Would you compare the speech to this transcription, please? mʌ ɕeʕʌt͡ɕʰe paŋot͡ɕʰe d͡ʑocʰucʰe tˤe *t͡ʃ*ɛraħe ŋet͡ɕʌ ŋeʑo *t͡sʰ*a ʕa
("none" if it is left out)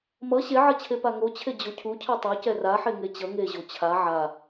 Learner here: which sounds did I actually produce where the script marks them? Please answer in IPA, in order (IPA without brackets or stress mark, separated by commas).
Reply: c, t͡ɕʰ